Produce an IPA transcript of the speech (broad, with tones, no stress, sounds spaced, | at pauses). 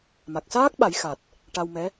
m a˨˩ k̚ s aː˦˥ k̚ ɓ a˨˩˦ j x a˨˩ t̚ | ʈ a˧ w m ɛ˧˥